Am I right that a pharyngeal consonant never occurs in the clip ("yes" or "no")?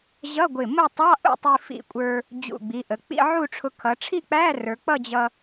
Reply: no